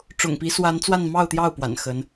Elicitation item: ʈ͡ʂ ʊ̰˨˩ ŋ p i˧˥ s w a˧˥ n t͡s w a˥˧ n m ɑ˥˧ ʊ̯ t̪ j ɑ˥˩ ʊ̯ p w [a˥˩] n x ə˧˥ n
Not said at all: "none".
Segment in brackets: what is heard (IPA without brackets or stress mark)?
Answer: a̰˨˩